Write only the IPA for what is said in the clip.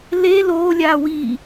l e l oː lʲ aː w i

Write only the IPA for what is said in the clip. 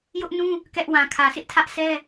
j ʊ˦ ʔ n ũ˦ | k ɛ˦ ʔ w ã˨ kʰ ä˨ s ɪ˦ ʔ tʰ ä˦ ʔ sʰ ɛ˦

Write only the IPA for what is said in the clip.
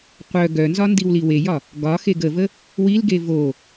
qʷ œ ɡ œ n z ɒ n d i w l i w e j ɒ | ɡ ɒ x e ɡ ə v ə | w i l ɡ e v o

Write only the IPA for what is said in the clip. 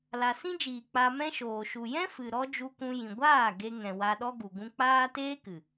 l a˨ s ĩ˦ d͡ʒ iː˨ k͡p a˧ m ɛ̃˦ ʃ oː˨ ʃ u˨ j ɛ̃˦ f ɨ˨ ɾ ɔ˦ d͡ʒ u˧ kʷ ũ˧ j ĩ˨ ɡʷ aː˦˨ ɡ e˧ ŋ ɛ̃˨ w a˧ ɗ ɔ˦ ɡ u˨ ɡ ũ˧ k͡p aː˦ t eː˦ k ɨ˨

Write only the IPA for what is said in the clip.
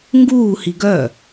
ŋ ɡ uː h i ɡ œ

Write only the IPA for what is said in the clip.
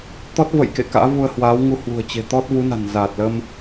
t̪ ɔ˦˥ t̚ v ə̰˧˨ j k ḛ˧˨ k a̰ː˧˥ v u˧ ə̯ h w aː˨˦ w ŋ u˧ h w ṳ˨˩ ə̯ t͡ɕ e̤˨˩ t̪ ɔ˦˥ t̚ v u˨˦ n a̤˨˩ n z aː˨˩ t̚ l əː˧ m

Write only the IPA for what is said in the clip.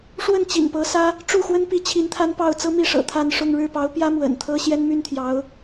ʂ w ə˥˩ n t͡ɕ ḭ˨˩ n p ɤ˧˥ s ä˥ | ʈ͡ʂ u˥˩ x w ə˥ n p i˧˥ t͡ɕʰ i˧˥ n t̪ʰ a˥ n p ɑ˥˩ ʊ̯ t͡s ɤ˥ m i˥˩ ʂ ɤ̰˨˩ t̪ʰ a˥˧ n ʂ ʊ˥˧ ŋ ɻ ɻ̩˥˩ p ɑ˧˥ ʊ̯ p j ä˥ m w ə̰˨˩ n t̪ʰ ɤ˥ ɕ j ɛ˥ n m y˥ n t̪ʰ j ɑ˧˥ ʊ̯

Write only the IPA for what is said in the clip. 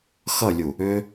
x ʌ lʲ u | ʏ

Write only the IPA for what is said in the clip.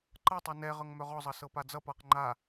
ǃ ɤ tˤ ɤ n ɛ ʁ ɤ ŋ m œ ʁ ɔ zˤ ʌ s ɤ p a d͡z ʌ p ʌː q ŋ͡ǃ a

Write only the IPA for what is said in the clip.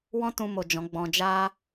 w ɔ̃˦ t ũ˧ m o˨ d͡ʒ ɔ̃˨˦ ɡ͡b ɔ̃˧ d͡ʒ a˧

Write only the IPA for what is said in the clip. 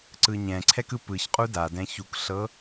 ǀ ɯ ɲ ɛ̃ ǀʰ ɛ k ɯ p ɯ ç qʼ u d a d ɛ̃ ç u k ɬ ɤ

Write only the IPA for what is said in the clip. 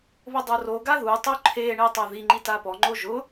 β ʊ dˤ o r o ɡ a ð u tˤ u ǃʰ e ɳ e tˤ a ð i ŋ͡ǃ i t a p ɔ ŋ͡ǃ o ʒ ʊ

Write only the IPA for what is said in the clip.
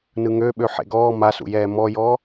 n ɯ ŋ ø ɓ ø ħ ḛ ɡ ɔː m a s ṵ j ɛː m ɔ j ɔ

